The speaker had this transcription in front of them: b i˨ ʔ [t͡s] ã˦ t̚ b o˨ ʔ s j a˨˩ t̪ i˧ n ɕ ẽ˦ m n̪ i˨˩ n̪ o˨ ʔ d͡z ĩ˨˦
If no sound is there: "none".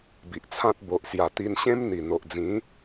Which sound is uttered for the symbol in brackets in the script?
t͡sʰ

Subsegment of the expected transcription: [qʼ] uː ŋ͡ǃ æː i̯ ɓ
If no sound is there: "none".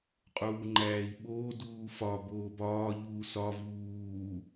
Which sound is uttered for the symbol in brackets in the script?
qʼ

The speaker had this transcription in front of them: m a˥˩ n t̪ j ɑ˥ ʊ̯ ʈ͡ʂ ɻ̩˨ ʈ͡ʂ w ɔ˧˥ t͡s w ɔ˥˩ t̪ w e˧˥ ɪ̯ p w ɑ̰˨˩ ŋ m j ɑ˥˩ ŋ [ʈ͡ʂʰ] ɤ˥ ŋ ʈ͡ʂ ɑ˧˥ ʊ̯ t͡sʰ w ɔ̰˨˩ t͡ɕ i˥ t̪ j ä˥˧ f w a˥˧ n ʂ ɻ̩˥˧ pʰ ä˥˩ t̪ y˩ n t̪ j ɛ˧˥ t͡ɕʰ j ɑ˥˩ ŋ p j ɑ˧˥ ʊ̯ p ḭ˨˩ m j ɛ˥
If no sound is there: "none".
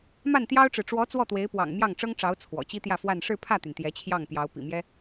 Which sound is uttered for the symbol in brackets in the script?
ʈ͡ʂ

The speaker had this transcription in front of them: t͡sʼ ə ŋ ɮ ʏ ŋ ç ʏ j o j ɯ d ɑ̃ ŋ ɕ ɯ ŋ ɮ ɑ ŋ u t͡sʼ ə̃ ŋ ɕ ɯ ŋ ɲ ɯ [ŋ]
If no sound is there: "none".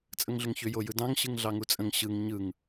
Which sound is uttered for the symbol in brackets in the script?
ŋ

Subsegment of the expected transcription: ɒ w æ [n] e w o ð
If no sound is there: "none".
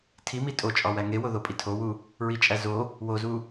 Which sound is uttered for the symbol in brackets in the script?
ŋ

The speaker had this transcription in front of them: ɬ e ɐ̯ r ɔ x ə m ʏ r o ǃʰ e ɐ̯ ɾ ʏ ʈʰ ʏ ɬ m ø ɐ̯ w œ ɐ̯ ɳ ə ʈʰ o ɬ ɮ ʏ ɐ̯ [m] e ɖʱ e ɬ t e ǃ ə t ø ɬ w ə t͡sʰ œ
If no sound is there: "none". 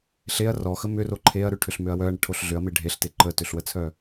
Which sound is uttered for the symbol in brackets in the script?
m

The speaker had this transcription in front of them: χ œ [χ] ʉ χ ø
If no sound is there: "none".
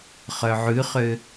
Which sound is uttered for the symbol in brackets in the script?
ʕ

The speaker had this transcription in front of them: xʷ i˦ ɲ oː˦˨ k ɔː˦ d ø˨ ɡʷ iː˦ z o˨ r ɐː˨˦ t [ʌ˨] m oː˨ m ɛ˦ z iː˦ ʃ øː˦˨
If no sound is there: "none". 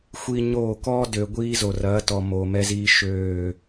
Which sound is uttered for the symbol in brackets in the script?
ɔ˨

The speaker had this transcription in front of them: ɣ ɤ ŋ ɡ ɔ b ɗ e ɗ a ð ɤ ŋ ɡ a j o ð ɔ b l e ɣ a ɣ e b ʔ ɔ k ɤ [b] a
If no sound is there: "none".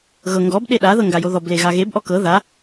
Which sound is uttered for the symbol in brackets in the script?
ð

